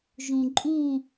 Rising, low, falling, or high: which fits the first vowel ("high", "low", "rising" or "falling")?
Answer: low